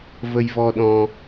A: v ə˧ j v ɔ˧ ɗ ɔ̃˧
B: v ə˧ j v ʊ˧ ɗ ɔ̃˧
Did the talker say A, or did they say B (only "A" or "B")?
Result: A